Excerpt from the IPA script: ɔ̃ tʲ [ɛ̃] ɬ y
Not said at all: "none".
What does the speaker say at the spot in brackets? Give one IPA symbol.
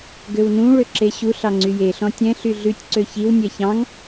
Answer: ɛ̃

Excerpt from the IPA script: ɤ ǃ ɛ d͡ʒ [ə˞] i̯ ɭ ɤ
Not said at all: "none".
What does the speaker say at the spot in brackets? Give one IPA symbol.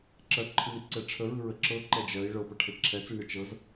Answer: ɜ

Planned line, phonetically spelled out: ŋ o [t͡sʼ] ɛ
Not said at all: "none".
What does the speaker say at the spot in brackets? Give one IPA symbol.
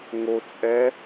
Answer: t͡sʼ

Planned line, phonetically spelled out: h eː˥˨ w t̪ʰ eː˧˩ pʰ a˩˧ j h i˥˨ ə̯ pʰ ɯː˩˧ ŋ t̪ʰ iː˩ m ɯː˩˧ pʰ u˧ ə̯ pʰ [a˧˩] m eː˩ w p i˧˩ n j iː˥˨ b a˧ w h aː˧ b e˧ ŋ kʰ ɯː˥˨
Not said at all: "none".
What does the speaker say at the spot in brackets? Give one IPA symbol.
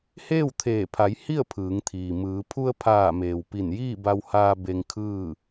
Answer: aː˧˩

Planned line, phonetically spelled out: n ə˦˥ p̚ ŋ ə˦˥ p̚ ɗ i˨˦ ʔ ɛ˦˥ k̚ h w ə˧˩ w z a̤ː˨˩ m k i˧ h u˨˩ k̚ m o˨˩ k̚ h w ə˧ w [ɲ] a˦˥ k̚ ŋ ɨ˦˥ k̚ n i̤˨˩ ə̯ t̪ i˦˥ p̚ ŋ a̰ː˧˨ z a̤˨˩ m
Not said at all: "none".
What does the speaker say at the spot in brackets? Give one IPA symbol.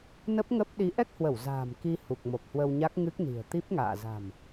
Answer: ɲ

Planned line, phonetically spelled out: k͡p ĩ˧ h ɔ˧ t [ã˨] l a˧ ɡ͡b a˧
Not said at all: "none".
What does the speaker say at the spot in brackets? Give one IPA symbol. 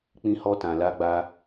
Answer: ã˨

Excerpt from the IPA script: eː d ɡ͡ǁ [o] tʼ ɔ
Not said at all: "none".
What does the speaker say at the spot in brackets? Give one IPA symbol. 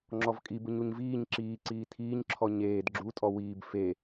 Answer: u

